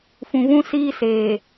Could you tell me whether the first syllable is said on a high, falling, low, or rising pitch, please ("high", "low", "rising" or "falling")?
low